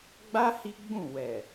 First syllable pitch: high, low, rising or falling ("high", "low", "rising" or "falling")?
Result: high